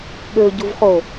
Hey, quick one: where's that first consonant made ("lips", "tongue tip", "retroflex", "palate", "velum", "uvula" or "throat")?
velum